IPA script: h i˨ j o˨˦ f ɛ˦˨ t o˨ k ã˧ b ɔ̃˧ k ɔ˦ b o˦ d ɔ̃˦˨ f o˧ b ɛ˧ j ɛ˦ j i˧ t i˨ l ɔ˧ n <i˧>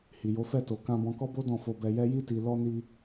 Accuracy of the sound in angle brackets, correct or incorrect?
correct